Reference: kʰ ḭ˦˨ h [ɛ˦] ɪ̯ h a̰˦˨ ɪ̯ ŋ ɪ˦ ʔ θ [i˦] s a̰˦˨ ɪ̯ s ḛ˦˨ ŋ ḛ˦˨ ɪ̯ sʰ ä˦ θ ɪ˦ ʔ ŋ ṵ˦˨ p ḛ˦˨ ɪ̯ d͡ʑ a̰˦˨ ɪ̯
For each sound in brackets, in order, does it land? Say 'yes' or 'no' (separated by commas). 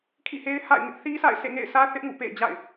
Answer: no, yes